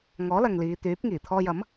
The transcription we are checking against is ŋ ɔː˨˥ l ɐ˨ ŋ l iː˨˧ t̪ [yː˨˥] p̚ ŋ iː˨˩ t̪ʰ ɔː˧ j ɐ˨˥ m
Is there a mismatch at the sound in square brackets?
no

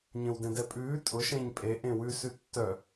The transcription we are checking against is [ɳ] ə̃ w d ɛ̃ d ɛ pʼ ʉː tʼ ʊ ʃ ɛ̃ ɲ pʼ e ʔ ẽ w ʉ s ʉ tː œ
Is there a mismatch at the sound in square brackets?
yes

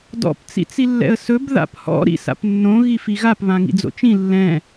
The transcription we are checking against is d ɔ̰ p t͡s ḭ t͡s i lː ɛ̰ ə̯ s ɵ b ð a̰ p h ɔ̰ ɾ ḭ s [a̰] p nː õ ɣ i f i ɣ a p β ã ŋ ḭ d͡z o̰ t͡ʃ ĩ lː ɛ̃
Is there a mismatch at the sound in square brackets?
no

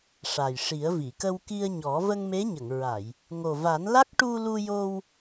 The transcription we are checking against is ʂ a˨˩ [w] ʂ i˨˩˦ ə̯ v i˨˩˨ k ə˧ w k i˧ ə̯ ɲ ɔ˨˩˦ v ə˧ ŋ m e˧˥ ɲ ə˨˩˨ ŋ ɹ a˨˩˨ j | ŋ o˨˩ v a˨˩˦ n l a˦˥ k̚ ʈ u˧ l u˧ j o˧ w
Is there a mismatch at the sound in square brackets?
yes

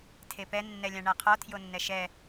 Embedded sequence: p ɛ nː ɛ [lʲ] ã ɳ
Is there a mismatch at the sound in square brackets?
no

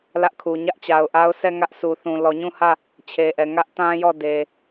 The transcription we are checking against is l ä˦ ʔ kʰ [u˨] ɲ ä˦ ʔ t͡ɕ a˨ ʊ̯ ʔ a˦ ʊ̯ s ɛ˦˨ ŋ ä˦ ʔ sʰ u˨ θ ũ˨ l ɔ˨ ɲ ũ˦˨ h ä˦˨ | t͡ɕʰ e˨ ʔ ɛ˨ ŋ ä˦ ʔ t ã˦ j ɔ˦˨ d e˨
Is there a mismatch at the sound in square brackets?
no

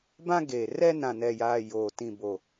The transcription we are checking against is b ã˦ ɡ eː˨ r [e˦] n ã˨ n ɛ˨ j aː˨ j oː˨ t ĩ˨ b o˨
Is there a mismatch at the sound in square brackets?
yes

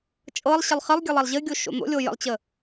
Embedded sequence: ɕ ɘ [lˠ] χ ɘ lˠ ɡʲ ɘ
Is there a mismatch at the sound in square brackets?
no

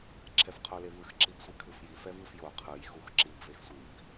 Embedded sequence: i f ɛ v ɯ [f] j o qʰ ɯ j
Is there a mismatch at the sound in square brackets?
no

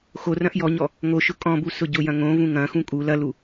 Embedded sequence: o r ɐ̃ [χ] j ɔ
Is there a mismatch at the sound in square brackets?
yes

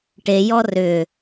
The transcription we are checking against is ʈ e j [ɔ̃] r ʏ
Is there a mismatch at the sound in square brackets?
yes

